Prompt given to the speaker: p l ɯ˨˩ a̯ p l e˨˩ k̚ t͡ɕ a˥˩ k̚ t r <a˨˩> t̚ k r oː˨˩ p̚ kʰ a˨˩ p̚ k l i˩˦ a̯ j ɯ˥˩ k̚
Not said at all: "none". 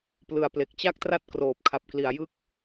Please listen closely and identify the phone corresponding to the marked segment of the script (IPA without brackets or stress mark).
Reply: a˥˩